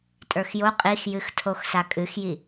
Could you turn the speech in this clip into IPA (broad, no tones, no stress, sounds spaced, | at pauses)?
tʼ ə˞ x j o qʼ i x j ɨ x tʰ o x s a kʼ ɨ x j i